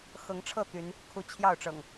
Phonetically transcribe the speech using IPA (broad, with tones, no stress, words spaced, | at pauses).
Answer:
xɤ˨˦ŋʈ͡ʂʰɤ˥˨ t̪y˨˦n | kʰu˨˦t͡ɕʰjɑ˥˨ʊ̯ʈ͡ʂɤ̰˨˩ŋ